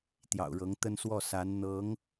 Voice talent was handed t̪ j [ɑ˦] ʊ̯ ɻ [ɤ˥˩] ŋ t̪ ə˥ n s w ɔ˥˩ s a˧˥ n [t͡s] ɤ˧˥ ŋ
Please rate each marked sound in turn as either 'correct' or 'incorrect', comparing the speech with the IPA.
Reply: incorrect: ɑ̰˨˩, incorrect: ɤ˧˥, incorrect: n̪

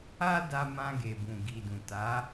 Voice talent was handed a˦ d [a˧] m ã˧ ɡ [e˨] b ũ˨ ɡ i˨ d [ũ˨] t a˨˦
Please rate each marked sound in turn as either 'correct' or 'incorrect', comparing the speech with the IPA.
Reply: correct, correct, correct

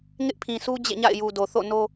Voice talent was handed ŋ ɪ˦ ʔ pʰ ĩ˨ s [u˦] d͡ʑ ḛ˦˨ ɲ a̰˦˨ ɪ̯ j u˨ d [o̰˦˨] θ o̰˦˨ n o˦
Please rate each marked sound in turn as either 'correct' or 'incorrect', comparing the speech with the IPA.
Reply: correct, incorrect: o˨

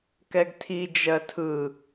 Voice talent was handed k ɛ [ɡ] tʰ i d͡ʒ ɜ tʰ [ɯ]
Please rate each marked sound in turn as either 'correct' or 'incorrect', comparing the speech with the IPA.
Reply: correct, correct

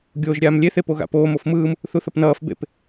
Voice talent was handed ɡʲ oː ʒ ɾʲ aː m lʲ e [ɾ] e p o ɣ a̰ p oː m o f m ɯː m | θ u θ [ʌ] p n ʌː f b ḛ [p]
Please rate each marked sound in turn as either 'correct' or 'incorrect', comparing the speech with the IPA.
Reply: incorrect: θ, correct, correct

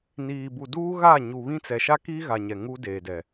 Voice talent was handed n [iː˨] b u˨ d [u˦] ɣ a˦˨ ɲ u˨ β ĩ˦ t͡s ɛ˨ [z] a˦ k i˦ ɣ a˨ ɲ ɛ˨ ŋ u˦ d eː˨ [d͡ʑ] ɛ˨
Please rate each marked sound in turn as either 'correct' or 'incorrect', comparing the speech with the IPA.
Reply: correct, incorrect: uː˦, incorrect: ʃ, incorrect: d

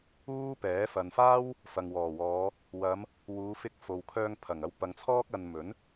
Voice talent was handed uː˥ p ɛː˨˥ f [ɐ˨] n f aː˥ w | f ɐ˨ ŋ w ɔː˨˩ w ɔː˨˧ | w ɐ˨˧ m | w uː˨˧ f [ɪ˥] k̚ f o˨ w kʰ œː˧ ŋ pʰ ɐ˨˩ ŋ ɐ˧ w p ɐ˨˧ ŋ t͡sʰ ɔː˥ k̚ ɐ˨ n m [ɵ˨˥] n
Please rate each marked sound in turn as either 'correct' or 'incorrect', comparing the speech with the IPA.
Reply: correct, incorrect: ɪ˧, correct

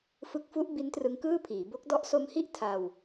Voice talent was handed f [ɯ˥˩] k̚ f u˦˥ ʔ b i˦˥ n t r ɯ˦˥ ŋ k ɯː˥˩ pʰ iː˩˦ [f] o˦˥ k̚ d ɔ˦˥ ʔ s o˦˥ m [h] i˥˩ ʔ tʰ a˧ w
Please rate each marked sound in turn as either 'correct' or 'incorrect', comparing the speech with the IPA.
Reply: incorrect: ɯ˦˥, incorrect: b, correct

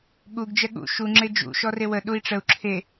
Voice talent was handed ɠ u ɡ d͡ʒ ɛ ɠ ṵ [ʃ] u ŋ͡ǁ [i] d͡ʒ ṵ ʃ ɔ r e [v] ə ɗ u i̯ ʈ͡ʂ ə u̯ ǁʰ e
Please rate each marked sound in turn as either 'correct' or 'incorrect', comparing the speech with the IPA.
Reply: correct, incorrect: e, incorrect: w

